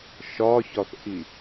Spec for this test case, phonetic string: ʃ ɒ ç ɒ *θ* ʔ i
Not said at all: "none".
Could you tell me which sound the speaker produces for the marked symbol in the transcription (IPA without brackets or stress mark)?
θ